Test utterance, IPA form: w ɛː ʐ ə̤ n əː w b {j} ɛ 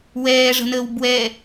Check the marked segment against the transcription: incorrect: w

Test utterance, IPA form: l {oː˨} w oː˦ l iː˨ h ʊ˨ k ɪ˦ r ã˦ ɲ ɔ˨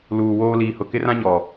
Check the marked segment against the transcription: incorrect: uː˨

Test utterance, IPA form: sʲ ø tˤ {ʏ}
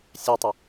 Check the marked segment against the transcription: correct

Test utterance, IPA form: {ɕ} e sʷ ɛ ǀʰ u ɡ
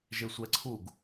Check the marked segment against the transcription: incorrect: ʒ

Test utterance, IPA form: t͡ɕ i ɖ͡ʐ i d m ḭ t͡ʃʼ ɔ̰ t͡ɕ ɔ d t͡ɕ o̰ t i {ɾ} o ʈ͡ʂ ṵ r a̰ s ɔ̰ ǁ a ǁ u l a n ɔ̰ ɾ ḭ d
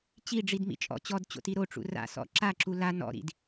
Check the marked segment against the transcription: correct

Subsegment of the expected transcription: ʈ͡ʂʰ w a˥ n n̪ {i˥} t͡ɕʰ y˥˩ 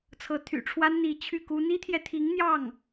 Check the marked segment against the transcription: incorrect: i˧˥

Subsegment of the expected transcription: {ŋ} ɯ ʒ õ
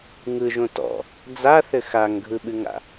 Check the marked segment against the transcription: correct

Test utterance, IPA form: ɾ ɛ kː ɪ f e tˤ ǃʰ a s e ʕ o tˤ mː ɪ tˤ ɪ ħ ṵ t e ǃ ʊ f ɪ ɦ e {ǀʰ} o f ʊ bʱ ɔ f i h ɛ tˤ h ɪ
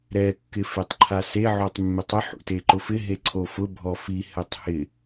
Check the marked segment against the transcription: correct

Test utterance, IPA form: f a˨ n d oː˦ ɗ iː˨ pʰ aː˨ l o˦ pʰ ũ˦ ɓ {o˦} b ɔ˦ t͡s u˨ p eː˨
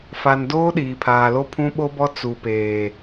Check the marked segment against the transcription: correct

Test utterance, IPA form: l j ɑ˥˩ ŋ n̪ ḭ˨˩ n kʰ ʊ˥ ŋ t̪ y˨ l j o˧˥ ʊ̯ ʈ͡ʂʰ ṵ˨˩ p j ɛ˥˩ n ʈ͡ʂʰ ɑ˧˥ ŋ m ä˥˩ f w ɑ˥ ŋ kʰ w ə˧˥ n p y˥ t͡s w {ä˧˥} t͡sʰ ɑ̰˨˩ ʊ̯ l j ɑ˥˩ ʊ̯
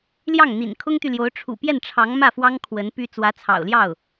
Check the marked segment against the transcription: correct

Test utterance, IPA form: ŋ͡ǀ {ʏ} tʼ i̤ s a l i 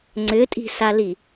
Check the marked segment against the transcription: correct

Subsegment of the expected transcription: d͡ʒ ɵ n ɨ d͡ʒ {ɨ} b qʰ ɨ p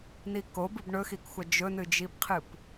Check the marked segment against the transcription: incorrect: i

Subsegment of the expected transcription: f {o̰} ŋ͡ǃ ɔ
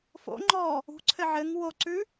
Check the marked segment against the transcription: correct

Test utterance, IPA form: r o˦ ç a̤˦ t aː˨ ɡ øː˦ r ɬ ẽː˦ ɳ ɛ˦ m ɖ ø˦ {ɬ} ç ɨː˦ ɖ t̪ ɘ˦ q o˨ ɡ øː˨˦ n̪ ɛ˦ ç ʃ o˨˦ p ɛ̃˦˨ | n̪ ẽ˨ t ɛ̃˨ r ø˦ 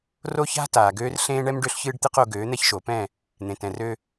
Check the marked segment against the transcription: correct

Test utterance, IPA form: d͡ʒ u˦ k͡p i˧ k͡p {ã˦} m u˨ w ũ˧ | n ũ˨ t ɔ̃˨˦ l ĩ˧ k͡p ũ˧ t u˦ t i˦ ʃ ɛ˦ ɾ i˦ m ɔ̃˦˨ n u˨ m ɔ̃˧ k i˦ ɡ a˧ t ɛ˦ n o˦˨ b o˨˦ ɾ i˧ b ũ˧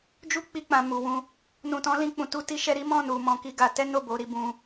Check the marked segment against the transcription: incorrect: ã˨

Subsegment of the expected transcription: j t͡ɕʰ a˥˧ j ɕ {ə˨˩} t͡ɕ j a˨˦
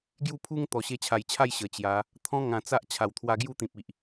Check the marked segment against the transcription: correct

